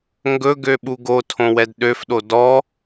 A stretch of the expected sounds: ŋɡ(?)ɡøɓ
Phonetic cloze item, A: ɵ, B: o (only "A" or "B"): A